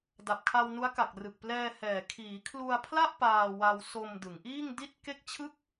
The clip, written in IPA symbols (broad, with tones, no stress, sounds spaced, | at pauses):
d a˨˩ p̚ kʰ a˧ w n u˦˥ a̯ k a˨˩ k̚ r ɯ˨˩ k̚ p l ɛː˧ h ɛː˨˩ kʰ iː˩˦ kʰ l u˧ a̯ pʰ l a˥˩ ʔ p aː˧ w a˧ w s o˧ m d ɯ˩˦ ŋ ʔ iː˥˩ ŋ d i˥˩ t̚ k e˥˩ k̚ t͡ɕʰ ɯ˥˩ k̚